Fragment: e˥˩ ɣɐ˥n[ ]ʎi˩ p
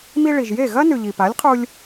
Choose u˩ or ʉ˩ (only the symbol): ʉ˩